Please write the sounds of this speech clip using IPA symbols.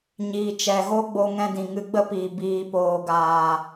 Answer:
ɲ iː˨ t͡ʃ ɛ˨ ɣ o˦ ɡ͡b o˧ ŋ ɛ̃˧ d ĩ˨ ŋ ɨ˧ ɡ͡b ə˦ p iː˨ b iː˨ p oː˨ ɡ aː˨

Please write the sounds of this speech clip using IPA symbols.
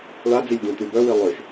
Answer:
ɭ a d͡z i lʲ d̪ ũ t̪ y b œ w i lˠ ø ʃ

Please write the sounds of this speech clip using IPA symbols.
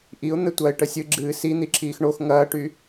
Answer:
ʔ i ʊ̯ n̪ ɘ tʷ ɐː ɪ̯ ʈ ə sʲ ɨ ɡ͡ǁ ɨː s i n̪ i ǁ iː x ɳ o x ŋ ɐː ʈ y

